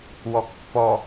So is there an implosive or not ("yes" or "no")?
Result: no